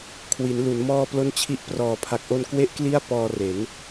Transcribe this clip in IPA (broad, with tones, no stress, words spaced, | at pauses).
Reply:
kʰwi˩˦nlu˩˦n mɔː˥˩plo˥˩nt͡ɕʰi˥˩ʔ prɔː˨˩pʰa˨˩k̚ʔo˧n kwe˥˩ʔkli˥˩a̯ pɔː˧re˩˦n